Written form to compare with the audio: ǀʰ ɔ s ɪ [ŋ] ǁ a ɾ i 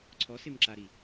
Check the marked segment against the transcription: incorrect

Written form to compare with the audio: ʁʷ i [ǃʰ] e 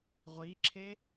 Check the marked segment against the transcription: incorrect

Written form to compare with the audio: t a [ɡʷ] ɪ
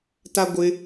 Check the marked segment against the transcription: correct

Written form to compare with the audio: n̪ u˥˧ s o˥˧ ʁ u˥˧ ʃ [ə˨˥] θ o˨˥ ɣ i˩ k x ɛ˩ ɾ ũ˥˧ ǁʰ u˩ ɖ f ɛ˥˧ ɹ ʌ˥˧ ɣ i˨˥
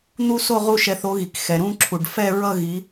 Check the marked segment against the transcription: incorrect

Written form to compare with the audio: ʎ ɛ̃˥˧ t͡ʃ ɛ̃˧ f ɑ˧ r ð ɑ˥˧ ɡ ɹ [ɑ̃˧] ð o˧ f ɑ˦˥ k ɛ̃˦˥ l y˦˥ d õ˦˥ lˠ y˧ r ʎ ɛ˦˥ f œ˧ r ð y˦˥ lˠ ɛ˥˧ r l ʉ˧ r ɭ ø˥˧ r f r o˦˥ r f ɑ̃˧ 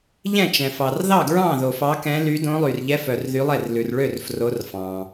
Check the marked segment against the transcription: incorrect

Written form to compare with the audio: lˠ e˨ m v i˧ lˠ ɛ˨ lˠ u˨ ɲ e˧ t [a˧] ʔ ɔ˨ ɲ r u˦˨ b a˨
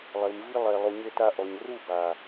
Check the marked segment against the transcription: correct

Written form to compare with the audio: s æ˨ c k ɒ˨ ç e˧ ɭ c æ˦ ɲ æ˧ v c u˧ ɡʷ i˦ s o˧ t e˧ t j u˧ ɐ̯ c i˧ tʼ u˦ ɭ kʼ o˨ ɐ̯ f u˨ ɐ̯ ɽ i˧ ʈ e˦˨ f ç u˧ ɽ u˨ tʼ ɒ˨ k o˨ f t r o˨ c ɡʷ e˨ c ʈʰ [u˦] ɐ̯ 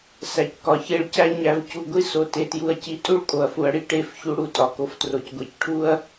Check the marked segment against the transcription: correct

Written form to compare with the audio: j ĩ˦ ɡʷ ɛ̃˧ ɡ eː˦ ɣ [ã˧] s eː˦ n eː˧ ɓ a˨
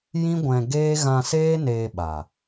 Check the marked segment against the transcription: correct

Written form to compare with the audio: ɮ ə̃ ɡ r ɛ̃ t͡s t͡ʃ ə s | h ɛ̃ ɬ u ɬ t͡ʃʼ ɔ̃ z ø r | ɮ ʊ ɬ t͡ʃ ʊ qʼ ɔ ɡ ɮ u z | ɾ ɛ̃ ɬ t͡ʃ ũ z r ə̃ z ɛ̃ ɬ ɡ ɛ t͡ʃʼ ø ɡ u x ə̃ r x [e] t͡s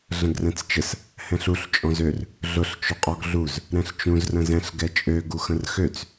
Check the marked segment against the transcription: incorrect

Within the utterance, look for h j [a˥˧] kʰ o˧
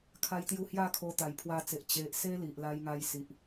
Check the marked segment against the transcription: correct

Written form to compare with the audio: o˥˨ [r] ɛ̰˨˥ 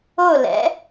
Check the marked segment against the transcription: incorrect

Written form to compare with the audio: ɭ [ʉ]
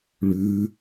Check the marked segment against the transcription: correct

